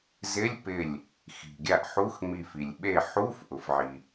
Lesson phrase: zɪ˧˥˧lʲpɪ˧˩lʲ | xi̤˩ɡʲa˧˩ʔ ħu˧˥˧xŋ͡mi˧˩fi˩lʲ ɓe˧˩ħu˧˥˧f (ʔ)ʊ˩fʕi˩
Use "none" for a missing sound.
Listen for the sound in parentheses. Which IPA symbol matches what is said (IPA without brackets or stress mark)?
ʔ